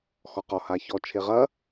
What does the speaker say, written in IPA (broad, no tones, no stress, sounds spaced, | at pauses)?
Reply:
x ɔ q ɔ h a ç ɔ t͡ʃʰ e ʁ ɐ